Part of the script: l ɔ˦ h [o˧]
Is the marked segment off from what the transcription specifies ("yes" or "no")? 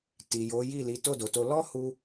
yes